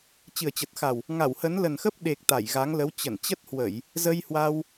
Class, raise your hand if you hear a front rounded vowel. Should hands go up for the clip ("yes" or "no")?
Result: no